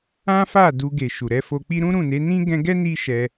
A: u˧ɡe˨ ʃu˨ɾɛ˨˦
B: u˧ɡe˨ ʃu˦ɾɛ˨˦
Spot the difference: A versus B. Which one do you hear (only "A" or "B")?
A